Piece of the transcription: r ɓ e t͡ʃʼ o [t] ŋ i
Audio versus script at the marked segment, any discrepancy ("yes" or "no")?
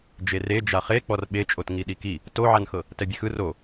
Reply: no